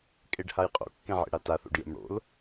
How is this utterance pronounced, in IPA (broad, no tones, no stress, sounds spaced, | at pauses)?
kʼ e ɖ h a j qʼ o̰ kː ẽ ʕ ḛ ɽ a t a θ o̰ ɖ j ḛ m ɽ o̰ l